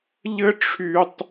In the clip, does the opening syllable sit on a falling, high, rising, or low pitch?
high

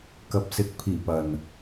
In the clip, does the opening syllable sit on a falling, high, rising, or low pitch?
low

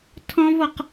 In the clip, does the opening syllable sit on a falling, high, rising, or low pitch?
high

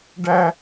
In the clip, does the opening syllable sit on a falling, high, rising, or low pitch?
high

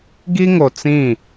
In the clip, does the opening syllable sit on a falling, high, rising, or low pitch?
high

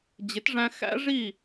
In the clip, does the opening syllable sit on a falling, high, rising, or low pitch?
rising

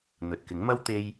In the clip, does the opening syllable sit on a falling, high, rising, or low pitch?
low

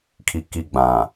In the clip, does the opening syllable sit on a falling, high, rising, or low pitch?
low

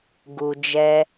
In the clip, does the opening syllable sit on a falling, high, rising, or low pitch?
low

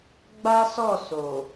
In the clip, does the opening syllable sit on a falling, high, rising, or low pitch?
high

